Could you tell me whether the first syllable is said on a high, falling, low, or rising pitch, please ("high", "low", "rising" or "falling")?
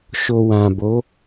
low